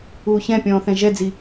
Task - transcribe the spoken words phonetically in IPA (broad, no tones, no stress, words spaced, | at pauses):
uːçɛ̃pʲɔ̃ː θɛ̃ʒɛd͡zi